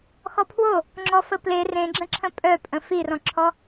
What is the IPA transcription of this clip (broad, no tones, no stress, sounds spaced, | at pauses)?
x ɔ pʰ w o | ŋ͡ǁ ɔ f ə p l e r ẽ ɡ͡ǁ ə̃ ǁʰ ə̃ pʼ œ pʼ ə̃ f i r ɔ̃ ǁʰ ɔ